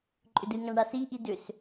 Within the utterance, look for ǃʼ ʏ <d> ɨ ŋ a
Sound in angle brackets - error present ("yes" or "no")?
no